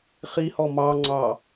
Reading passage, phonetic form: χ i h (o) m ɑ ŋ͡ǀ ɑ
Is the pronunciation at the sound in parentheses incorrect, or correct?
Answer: incorrect